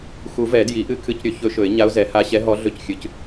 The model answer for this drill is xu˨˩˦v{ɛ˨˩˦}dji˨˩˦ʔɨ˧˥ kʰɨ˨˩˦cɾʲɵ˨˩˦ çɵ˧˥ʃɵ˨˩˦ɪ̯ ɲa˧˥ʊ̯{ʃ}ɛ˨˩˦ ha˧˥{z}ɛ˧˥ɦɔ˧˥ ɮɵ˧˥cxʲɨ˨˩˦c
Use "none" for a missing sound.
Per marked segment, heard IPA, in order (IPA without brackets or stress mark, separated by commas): ɛ˨˩˦, z, ɕ